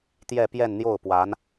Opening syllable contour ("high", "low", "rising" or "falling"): falling